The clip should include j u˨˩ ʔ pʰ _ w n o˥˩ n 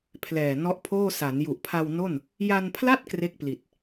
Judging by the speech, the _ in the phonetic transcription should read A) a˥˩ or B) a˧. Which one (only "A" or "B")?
B